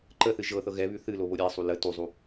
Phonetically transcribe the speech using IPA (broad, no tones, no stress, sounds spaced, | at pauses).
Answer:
ǃ ə θ ɨ ʒ ɤ θ ɤ ɣ ɛ β ʉ θ ɨ l o β o ɾʲ ɛ sˤ u l ə t u zˤ u